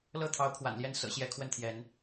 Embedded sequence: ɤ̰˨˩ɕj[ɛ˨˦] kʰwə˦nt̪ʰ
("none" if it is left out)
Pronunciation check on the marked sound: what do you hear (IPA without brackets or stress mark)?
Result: ɛ˨˦